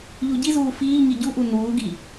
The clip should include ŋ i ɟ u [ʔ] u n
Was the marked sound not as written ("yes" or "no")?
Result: no